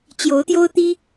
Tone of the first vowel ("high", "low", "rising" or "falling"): rising